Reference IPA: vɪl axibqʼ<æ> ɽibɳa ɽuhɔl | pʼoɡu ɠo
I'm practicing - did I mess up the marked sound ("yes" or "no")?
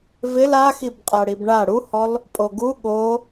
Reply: yes